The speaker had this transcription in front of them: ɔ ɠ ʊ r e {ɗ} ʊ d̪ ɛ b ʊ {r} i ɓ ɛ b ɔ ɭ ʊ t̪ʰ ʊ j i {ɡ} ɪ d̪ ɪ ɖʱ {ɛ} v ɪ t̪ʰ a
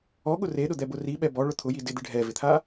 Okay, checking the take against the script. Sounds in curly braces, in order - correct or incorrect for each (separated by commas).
correct, correct, incorrect, correct